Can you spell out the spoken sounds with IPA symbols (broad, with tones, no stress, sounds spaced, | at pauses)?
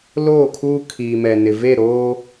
l oː˦˨ kʰ uː˦ kʰ iː˨ m ɛ˨ n ɪ˨ v e˦˨ ɾ oː˦